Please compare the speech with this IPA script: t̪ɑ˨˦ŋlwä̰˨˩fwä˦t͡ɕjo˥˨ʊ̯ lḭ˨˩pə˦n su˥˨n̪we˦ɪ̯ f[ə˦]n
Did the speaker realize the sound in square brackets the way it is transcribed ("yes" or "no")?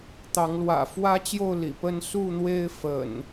no